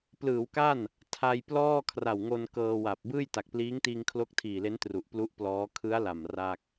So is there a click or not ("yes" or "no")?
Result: no